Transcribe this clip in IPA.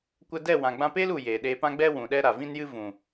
kʷə˧dɛ˦˨ wã˨ɡ͡bã˧peː˦lu˨ jeː˨ɗeː˧pã˦ɡ͡bɛ˦ wũ˨ɗɛ˦ɾa˨ vĩ˦njɨ˦ vũ˨

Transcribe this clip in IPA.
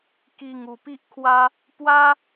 ki˧ŋu˨˩pi˦ʔkʰwa˦ | pwa˦

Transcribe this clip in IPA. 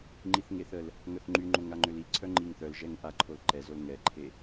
ŋ͡ǃiθŋeθəl | ŋœθŋ͡ǃyŋ͡ǃoŋ aŋ͡ǃøliǀʰœ ŋ͡ǃiŋθœlʒɛŋ ʔa ǃʰolǃɛzol ŋɛǃʰe

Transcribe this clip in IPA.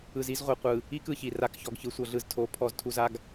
ɯ˨zi˦zʁʷɤ˨qʷɯ˨ | i˦k ɯ˨çi˨ ra˨kçɔ˨ɡ çɯ˨sʷɤ˨ɮɯ˨z tʰo˨˦ pʰɔ˨ztʰu˨za˨ɡ

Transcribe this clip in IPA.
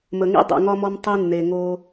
mə˨ŋḭ˦ dˤḛ˨ŋɒ˦mɔ˦m tˤe˦nːe˨ ŋo˦

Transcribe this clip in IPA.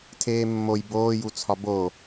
tʰeːmːoj boːjut͡sʰɒ bo

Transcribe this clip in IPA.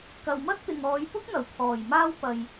kɐ˨wmɐ˥t̚t̪ɪ˨ŋɔː˨˧j pʊ˥k̚n̪ɐ˨˩w pʰɔː˨˩jmaː˥w pɐ˧j

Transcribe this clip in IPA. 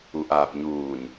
uʔaːpɲuːɲ

